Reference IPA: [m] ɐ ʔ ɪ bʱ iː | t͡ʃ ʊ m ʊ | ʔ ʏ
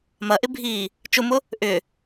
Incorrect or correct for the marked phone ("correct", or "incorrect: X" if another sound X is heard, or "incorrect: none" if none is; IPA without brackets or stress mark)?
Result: correct